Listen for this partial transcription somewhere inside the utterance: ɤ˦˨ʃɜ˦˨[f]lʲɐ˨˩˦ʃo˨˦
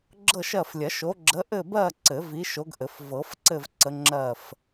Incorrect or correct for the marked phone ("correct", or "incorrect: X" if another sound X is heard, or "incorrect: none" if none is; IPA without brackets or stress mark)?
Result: correct